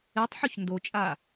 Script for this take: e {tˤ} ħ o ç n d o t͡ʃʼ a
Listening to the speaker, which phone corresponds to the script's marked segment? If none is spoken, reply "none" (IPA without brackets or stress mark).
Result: tˤ